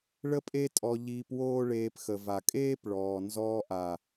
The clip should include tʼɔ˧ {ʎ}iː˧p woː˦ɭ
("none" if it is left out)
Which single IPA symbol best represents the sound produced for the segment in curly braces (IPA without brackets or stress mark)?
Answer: ʎ